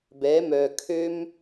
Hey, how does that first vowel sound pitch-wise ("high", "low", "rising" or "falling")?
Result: rising